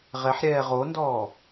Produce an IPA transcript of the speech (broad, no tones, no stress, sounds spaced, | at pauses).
ʁ ɛ ħ ɾʲ ɛː ʁ o n d ɔː